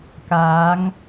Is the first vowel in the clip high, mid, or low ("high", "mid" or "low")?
low